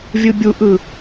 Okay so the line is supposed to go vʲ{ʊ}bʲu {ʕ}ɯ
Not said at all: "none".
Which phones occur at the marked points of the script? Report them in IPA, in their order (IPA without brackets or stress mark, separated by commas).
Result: ɯ, ʔ